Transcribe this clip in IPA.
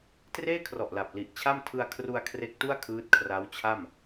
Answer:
t r eː˥˩ kʰ r ɔ˨˩ ʔ l a˨˩ p̚ l i˨˩ ʔ t͡ɕʰ a˥˩ m tʰ ɯ˧ a̯ kʰ r u˧ a̯ kʰ r e˦˥ k̚ t u˥˩ a̯ kʰ ɯː˦˥ t̚ kʰ r a˦˥ w t͡ɕʰ a˥˩ m

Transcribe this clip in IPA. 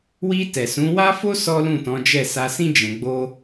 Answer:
w i˧ t ɛ˨ s ũ˨˦ w a˦ f o˦ s ɔ˦ l ũ˦˨ t ɔ̃˨˦ d͡ʒ ɛ˦˨ s a˧ s ĩ˦ d͡ʒ ɛ̃˧ ɡ͡b o˦

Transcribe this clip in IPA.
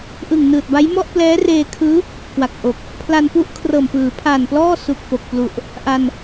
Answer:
ʔ ɯ˨˩ ŋ n ɯː˨˩ t̚ b a˦˥ j m ɔ˥˩ ʔ p l ɛː˦˥ r eː˧ kʰ ɯː˦˥ | k w a˨˩ k̚ ʔ o˨˩ k̚ | pʰ l a˧ n p u˥˩ ʔ kʰ r ɤː˨˩ m p ɯː˩˦ pʰ a˨˩ n p l ɔː˥˩ s u˨˩ k̚ p o˨˩ k̚ p l u˨˩ ʔ | ʔ a˧ n

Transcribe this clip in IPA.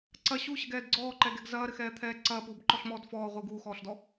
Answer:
ǀ ɐ ɕ u ɕ ɘ ɡ ɛː d ɡ͡ǀ ɔː ǃ ɛ ɡ ɛ ɡ z ɐː ɾ ɘ x ɛː t̪ʰ ɛː ǀ ɐː p uː b ǃ ɔ ɬ m ɔː d f ɔː ʁʷ i ɡ uː x ɔː ɬ d ɔ

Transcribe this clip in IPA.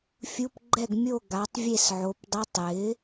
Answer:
fʲ u˧˥˧ p ɡ͡ǃ ɛ˥˨ ɡ mʲ o˥˨ ɡ a˨˥ tˤ vʲ e˥˨ s ʕ o˨˥ p dˤ i˧˥˧ tˤ j ɪ˨˥

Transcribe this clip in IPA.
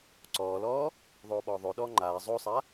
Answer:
ǀ ɔː l ɔː | ðˤ oː ɓ ɔː ðˤ o ɗ ɔː ŋ͡ǃ aː zˤ o sˤ a

